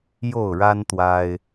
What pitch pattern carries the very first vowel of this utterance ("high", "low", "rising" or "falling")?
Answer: falling